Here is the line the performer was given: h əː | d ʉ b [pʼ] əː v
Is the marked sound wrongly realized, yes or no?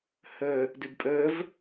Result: no